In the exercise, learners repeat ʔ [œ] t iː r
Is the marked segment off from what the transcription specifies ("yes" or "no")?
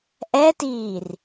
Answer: yes